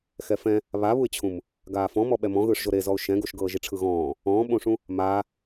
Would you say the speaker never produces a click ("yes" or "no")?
yes